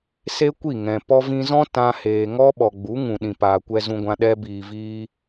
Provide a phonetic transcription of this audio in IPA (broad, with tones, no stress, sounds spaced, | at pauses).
s e˦ kʷ i˦˨ ŋ ɛ̃˨ p ɔ˧ v ĩ˧ z ɔ̃˦ t ã˧ h eː˨ ŋ ɔ˦ ɓ ɔ˨ ɡ͡b u˨˦ ŋ ũ˨ ɗ ĩ˨ p aː˨ kʷ ɛ˧ z ũ˧ ɡʷ ã˧ ɗ ɛ˦ b iː˧ v iː˦